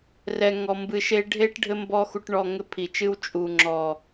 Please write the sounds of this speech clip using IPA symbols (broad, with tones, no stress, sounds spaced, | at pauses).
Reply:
r ɛ˧ ŋ ɔ˧ m b ɨ˧ ʃ e˦ ɖʱ e˦ ʈ ɖʱ ɘ˦ m b ɔ˦ x u˧ ʈ ɳ ɔ˧ ŋ ɘ˦ pʰ i˨ t͡ʃ ɨ˦ w t͡ʃʼ u˨ ŋ͡ǁ ɔ˨